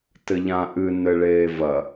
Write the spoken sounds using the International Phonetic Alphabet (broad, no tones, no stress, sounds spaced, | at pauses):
t ɘ ʎ ã ʔ ɨ n ɘ ɭ eː v ɐ